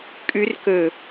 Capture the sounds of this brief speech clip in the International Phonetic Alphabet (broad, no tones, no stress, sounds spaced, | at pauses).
kʼ ʉ r k ɵ